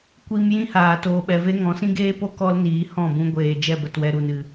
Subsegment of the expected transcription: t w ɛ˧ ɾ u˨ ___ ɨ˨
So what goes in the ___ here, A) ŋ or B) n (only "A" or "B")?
B